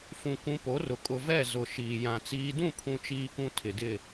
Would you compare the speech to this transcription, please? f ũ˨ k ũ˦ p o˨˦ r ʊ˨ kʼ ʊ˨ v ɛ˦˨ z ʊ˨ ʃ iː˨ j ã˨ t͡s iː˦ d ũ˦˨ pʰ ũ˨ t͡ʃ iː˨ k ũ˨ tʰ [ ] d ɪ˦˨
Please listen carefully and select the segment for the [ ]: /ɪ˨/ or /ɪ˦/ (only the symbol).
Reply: ɪ˨